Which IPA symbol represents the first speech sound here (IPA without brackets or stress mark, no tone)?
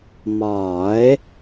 m